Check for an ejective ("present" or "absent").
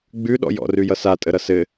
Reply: present